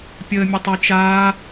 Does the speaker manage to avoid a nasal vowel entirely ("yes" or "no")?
yes